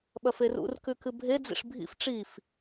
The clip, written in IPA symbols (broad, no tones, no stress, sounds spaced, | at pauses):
ɓ ɐ f e r ṵ r k ʉ k ɨ bʱ e d͡z ḭ ʂ bʱ ḭ f ʈ͡ʂ i f